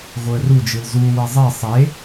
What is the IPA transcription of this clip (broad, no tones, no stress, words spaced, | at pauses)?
ɣoə̯ru d͡ʒɯlzu wezˤe sˤe